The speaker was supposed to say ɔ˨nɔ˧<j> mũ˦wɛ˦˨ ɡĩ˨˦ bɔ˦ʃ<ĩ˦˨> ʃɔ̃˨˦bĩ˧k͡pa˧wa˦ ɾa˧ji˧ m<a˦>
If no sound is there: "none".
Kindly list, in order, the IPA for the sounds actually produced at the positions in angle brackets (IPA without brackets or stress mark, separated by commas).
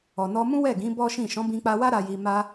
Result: none, ĩ˦˨, a˦